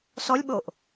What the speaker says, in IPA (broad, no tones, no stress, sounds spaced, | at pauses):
s ɔ lʲ ɓ o ʔ